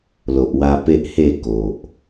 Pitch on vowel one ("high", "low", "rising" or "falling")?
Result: low